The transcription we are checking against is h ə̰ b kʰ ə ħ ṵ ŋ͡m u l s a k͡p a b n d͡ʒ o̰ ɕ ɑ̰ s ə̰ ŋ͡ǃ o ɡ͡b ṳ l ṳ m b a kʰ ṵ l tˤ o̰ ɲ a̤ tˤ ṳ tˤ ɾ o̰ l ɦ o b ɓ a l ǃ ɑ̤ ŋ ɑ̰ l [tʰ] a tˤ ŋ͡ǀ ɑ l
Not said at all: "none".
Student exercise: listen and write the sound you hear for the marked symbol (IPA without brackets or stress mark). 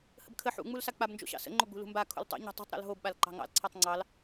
ǀʰ